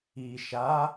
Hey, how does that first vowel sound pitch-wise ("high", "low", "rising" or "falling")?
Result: low